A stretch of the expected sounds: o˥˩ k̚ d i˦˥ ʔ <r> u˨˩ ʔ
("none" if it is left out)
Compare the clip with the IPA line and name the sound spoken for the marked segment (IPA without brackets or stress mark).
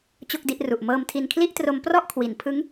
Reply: r